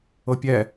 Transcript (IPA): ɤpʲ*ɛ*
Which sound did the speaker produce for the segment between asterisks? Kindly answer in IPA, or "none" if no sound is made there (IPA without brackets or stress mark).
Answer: ɛ